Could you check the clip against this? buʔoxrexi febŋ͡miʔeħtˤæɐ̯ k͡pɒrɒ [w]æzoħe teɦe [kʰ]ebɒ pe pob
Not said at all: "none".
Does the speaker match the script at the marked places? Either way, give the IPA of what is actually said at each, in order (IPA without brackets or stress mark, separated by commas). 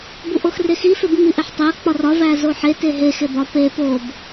v, x